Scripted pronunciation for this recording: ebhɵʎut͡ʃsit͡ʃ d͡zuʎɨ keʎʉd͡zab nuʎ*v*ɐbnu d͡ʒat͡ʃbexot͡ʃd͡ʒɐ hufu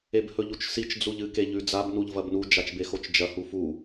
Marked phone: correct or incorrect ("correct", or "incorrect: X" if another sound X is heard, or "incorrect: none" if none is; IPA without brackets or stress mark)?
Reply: correct